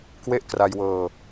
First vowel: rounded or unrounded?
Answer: unrounded